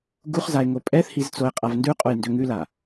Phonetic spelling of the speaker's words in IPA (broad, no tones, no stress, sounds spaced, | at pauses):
ɡ u χ z a e̯ ŋ o pʼ ɛ θ h i z t͡s o e̯ qʼ a v n d ʉ qʼ o j n d ø ŋ ʉ l a